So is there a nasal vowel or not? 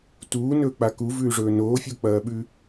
no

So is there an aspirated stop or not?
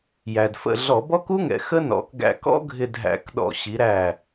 no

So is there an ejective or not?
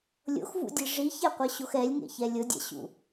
no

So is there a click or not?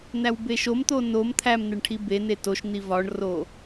no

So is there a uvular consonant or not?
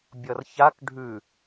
no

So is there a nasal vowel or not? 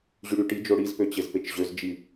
no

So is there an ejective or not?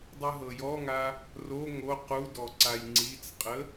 yes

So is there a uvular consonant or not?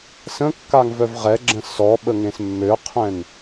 yes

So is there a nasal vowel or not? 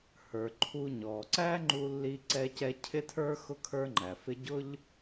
no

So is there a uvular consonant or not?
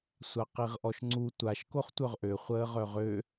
yes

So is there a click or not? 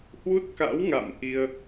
no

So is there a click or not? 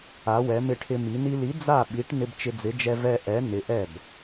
no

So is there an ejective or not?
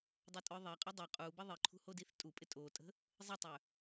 yes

